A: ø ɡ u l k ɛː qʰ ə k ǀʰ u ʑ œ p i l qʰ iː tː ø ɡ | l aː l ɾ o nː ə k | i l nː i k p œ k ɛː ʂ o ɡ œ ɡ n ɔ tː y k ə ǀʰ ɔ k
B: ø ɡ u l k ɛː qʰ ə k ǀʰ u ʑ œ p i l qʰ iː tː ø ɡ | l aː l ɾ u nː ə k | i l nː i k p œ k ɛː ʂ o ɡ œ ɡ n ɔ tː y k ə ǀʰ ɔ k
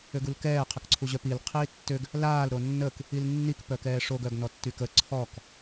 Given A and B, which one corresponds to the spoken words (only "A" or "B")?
A